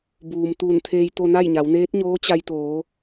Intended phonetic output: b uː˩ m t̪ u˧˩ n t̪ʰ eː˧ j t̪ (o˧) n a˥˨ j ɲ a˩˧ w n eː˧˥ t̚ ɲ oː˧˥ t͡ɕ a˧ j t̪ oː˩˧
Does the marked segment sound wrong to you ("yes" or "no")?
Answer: no